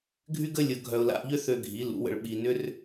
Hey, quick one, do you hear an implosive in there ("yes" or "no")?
yes